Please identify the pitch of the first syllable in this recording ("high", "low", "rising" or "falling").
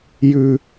low